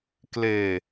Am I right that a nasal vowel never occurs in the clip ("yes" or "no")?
yes